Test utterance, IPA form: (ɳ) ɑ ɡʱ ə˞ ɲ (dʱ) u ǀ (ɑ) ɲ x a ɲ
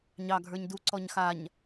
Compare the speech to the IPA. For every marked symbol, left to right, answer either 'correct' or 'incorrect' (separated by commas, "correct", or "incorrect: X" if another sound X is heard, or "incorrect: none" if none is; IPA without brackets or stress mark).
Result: incorrect: ɲ, incorrect: d, incorrect: ɔ